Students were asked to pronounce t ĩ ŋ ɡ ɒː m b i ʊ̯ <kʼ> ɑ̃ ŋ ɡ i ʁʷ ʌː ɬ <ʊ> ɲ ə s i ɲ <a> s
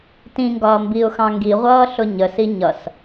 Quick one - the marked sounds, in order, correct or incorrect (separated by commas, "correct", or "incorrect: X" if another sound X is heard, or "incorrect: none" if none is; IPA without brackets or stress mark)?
incorrect: x, correct, incorrect: ʌ